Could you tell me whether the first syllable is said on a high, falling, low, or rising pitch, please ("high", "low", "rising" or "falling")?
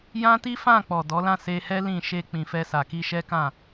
high